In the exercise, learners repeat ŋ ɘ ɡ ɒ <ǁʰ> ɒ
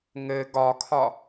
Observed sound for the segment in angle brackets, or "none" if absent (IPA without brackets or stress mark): kʰ